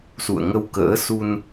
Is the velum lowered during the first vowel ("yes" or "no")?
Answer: no